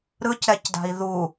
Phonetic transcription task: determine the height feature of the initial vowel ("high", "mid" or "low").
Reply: high